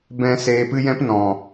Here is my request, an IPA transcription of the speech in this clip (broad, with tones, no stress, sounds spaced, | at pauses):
b ɛ̃˦ s eː˧ p ɨ˦ j ɛ̃˦ p n ɔ̃˨